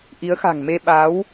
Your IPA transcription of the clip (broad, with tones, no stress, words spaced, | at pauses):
ʔi˨˦ə̯xa̤˨˩ŋme˧ ɓa˨˦w